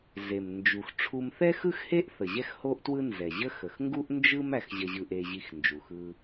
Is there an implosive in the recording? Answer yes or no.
no